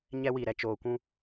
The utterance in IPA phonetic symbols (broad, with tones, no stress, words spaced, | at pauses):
ɲɛ˦wi˨ ɾɛ˨ t͡ʃoː˨kʷũ˦